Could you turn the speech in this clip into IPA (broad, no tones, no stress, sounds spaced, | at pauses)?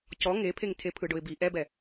c ɔ ŋ e pʰ e ŋ tʰ e pʰ ɯ ɖ ʊ ɪ̯ b i ʔ ɛ b ɛ